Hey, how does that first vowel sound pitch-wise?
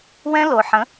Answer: high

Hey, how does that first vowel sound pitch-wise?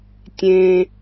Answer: low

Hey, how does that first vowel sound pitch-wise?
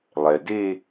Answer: low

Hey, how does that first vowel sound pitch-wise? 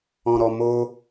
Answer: low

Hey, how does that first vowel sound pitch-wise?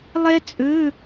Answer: high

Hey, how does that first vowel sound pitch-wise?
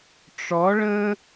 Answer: rising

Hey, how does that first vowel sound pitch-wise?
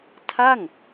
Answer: falling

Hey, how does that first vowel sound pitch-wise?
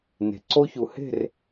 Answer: low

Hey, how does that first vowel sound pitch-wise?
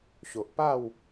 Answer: low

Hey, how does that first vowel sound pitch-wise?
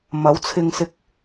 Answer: rising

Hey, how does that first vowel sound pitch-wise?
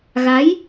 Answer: rising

